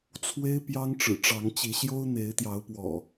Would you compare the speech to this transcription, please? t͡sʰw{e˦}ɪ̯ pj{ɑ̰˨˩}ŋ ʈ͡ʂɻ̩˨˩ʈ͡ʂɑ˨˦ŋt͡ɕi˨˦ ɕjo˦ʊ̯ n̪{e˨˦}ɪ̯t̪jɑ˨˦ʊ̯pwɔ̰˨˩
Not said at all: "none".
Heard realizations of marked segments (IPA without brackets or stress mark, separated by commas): e˦, ɑ˦, e˨˦